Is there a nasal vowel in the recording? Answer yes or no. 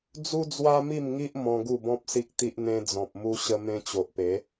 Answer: yes